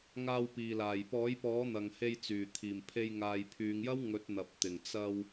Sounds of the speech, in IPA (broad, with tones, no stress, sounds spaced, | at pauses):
ŋ aː˧ w p iː˨ l aː˨˩ j p ɔː˨˥ j p ɔː˨˥ n̪ ɐ˧ ŋ h e˧ j t͡s yː˨˩ t̪ʰ iː˨˩ m pʰ e˧ j ŋ aː˨ j pʰ yː˨˧ ŋ j ɐ˥ w ŋ ɵ˨˥ t̚ n̪ ɐ˨ p̚ t̪ ɪ˨˩ ŋ t͡s ɐ˧ w